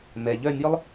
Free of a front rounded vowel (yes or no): no